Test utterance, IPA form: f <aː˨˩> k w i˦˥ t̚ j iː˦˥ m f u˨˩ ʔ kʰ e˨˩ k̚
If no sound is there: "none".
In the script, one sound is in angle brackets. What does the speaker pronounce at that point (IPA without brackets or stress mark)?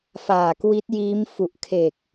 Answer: aː˨˩